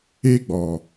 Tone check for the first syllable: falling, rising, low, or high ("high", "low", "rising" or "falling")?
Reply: high